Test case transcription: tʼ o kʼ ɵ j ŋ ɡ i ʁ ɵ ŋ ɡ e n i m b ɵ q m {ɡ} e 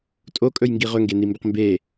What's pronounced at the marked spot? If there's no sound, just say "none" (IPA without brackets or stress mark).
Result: b